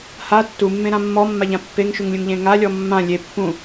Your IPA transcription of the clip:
h a tː u mː ẽ ɾ ã mː ɔ mː a ʎ ã pː e ŋ ʃ u ŋ lʲ ũ ŋ ʎ ẽ ŋ a lʲ ɔ mː ã lʲ e pː ũ

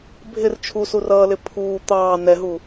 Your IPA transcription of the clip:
bʱ ɪ r t͡ʃʰ u s u r ʌː l ɪ pʰ uː t̪ ɑː n ɛ ɦ u

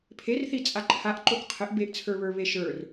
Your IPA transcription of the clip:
pʰ e r θ i t͡sʼ a ǃʰ a ʔ ǃ o k qʰ ɘ ʔ b e ʔ t͡sʰ ə˞ β ə˞ β e ʃ ə˞ r

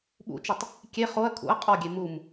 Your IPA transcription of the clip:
ɓ ṵ t͡ʃ i tˤ | kʲ e χ o ɐ̯ kʰ ṵ ɐ̯ qʼ ɔ ɡʲ e m u m

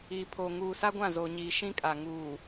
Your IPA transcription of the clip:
i˨ pʰ o˨ ŋ uː˨ s a˦ ɡʷ ã˦˨ z oː˨ ɲ iː˨ ʃ ĩ˦ kʼ a˨ ŋ uː˨

